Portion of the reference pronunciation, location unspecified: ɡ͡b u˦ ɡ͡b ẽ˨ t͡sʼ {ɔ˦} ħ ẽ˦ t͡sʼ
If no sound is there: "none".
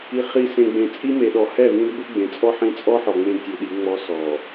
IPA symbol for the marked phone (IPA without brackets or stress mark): ɔ˦